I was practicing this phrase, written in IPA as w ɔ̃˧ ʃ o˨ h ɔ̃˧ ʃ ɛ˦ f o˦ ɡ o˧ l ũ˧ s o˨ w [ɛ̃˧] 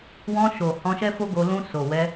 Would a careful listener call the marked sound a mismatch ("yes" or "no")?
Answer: yes